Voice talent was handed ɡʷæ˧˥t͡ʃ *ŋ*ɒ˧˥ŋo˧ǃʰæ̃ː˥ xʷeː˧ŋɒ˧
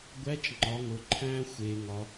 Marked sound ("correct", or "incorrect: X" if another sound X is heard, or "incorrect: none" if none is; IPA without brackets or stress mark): incorrect: ŋ͡ǃ